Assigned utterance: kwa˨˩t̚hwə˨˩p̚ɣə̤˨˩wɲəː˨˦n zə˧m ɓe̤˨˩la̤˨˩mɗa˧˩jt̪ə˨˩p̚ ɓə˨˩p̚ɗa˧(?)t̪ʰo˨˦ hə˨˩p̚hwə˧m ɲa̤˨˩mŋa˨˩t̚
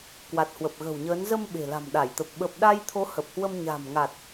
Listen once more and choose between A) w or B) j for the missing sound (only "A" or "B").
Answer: B